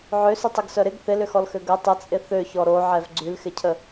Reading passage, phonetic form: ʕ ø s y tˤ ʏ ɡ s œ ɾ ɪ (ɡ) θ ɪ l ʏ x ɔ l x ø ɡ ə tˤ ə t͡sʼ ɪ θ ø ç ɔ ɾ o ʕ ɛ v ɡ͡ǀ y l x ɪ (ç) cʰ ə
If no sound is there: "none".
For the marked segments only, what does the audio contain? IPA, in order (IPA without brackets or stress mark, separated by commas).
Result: ɡ, none